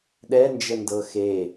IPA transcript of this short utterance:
ɗɛnd͡ʒəndɤ xe

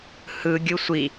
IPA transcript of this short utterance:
hɯ ɡʲɯsʷi

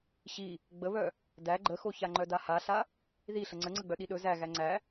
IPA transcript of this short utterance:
ɕi | ɡ͡bəβœ | dæ ɡ͡ǃəxoça ŋ͡ǃœdahaɬa | ði ɬəŋ͡ǀəŋ͡ǀəɡ͡bœ ɗiɗɵ zæ ɣæŋ͡ǀæ

